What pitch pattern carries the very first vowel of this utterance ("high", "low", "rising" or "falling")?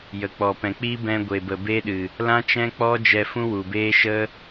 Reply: low